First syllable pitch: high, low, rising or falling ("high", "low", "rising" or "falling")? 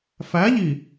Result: rising